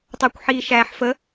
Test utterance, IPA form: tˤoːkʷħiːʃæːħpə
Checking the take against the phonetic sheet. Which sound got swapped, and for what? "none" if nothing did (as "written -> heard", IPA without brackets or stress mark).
p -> f